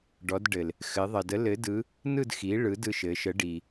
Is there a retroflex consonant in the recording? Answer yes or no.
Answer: yes